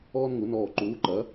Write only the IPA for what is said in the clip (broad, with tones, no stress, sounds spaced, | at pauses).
ɔː˥ n ŋ u˨˥ n ɔː˦˨ ǃ uː˨˥ ǃ ɐ˨˥